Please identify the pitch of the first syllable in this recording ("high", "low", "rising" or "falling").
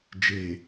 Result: low